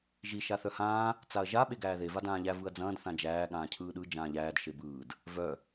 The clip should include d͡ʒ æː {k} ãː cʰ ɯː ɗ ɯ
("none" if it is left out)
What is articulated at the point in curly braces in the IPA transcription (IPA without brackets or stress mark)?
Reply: ɠ